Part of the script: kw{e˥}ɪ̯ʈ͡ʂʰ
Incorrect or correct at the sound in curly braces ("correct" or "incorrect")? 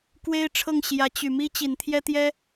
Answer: correct